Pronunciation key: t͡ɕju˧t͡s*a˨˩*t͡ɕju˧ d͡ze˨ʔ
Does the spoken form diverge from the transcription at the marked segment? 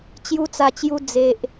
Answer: no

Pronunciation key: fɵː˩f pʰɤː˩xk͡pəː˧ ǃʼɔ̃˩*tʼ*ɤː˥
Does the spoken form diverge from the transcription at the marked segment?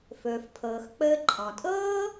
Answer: no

